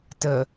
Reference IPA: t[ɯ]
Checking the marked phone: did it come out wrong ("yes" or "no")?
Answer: yes